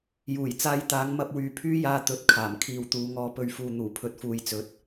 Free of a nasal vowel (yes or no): yes